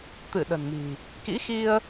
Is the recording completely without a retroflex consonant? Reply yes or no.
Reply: yes